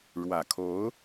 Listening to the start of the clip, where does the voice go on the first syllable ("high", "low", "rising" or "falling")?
low